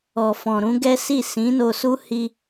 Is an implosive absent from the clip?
yes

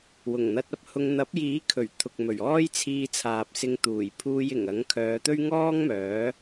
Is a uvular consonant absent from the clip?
yes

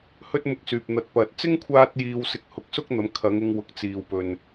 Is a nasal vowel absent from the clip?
yes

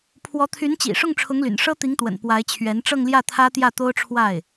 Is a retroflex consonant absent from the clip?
no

